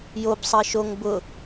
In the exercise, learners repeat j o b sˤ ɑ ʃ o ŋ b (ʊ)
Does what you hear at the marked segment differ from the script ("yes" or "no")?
no